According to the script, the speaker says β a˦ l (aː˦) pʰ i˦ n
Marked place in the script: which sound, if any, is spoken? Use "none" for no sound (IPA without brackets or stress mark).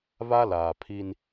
aː˨